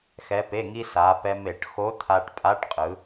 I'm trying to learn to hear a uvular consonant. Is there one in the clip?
yes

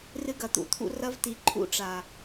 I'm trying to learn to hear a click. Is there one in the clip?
yes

